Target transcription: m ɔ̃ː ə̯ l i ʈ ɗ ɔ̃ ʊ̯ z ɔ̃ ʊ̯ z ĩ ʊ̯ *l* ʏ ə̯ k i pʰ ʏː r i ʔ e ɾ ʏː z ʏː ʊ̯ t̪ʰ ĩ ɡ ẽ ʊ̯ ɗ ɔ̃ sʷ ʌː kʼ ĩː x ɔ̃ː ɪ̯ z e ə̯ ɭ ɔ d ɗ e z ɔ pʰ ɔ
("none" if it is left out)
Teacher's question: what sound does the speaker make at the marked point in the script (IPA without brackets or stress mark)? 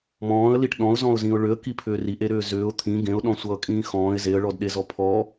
ɭ